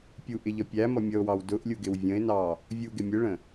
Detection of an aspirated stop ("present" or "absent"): absent